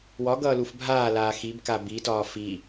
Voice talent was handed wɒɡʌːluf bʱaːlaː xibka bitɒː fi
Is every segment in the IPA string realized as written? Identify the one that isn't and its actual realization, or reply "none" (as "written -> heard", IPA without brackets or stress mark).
none